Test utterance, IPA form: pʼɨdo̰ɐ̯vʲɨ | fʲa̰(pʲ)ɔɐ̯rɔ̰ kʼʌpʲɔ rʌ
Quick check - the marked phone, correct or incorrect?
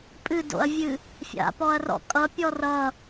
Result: incorrect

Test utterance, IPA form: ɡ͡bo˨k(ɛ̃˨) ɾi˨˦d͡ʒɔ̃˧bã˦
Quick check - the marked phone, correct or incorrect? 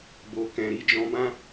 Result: correct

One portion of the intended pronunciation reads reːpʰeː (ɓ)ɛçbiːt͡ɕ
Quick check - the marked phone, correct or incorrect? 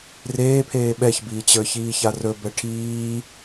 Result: correct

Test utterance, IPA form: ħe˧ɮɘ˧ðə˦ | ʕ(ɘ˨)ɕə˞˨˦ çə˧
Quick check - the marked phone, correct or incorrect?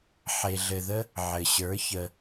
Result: correct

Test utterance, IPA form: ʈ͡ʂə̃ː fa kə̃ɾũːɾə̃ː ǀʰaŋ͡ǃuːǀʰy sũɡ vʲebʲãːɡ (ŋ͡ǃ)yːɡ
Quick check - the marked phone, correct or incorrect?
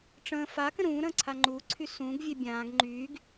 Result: correct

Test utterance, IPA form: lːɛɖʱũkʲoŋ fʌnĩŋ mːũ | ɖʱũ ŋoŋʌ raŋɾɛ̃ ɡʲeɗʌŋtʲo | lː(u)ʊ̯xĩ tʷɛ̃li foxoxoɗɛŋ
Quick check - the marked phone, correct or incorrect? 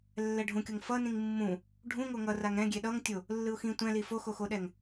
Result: incorrect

